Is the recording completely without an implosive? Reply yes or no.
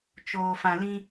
yes